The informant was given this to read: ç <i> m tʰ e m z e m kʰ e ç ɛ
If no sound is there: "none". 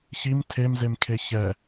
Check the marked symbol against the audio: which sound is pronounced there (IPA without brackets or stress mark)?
i